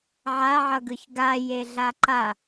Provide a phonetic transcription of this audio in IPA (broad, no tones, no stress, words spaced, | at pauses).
ʕaʕʌɡɯç ɡajeɮa ǃa